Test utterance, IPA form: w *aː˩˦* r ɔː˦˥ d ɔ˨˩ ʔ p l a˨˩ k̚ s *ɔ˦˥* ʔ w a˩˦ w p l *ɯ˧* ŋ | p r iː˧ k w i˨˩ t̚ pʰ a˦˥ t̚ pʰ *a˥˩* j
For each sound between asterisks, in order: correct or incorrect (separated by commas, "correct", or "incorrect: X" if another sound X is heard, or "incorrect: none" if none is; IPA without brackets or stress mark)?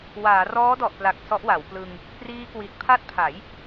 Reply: correct, correct, correct, incorrect: a˩˦